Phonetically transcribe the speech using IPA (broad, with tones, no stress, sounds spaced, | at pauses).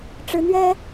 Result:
ʈ͡ʂ ɻ̩˧˥ n̪ ɥ ɛ˥